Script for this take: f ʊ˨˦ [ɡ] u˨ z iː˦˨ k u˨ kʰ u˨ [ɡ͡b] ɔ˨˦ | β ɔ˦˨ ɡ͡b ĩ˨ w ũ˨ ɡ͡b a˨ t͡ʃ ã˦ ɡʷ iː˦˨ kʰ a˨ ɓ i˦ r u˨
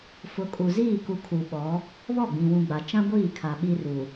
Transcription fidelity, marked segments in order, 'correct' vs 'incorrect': incorrect, incorrect

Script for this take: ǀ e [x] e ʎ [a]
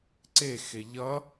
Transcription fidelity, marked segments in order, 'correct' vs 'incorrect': correct, incorrect

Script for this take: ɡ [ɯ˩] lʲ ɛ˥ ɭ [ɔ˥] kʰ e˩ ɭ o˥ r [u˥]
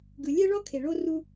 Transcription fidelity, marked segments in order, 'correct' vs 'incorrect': correct, correct, correct

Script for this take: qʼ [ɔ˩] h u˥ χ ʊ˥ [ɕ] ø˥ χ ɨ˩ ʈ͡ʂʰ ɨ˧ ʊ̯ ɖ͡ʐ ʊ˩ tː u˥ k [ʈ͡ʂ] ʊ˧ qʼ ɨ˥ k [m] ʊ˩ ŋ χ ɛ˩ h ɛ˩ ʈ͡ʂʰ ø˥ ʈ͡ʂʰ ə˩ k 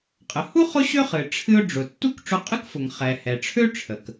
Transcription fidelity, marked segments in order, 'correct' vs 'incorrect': incorrect, correct, correct, incorrect

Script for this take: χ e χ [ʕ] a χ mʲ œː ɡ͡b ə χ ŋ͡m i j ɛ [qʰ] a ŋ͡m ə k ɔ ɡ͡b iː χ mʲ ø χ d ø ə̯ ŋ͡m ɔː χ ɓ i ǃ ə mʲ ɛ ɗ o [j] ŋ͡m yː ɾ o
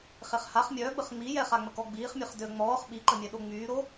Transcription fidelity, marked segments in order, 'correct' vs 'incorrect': incorrect, incorrect, incorrect

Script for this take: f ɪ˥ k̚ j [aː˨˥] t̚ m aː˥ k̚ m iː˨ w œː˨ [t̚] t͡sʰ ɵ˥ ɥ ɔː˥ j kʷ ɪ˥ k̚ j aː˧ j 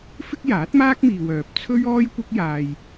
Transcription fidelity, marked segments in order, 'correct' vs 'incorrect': correct, incorrect

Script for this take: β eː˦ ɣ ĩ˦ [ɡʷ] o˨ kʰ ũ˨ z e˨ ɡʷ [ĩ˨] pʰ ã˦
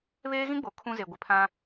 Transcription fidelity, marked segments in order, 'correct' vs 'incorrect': incorrect, incorrect

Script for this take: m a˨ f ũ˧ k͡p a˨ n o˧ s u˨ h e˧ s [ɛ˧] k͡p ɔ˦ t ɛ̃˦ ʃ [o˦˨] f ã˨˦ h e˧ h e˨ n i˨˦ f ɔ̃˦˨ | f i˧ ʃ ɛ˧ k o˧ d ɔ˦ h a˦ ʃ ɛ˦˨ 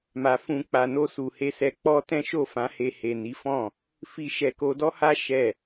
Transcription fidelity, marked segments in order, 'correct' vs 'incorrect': correct, correct

